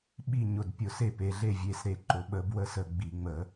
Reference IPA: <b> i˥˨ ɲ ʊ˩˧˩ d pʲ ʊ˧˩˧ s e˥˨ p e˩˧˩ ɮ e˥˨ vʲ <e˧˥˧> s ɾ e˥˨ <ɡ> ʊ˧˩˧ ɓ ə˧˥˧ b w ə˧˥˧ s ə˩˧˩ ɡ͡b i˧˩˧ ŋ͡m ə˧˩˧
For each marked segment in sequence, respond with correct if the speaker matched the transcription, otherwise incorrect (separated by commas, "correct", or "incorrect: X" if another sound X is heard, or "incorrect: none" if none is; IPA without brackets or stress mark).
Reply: incorrect: ɓ, correct, incorrect: ǃ